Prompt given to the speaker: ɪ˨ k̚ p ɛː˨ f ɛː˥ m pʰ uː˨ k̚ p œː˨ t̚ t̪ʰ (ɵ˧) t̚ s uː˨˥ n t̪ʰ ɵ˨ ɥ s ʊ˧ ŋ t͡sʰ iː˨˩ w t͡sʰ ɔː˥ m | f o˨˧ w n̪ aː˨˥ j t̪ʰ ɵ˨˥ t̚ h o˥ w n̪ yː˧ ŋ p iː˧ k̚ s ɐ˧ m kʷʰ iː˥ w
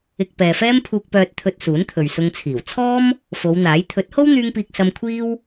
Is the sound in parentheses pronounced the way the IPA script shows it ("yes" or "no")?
no